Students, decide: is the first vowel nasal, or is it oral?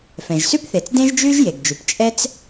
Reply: nasal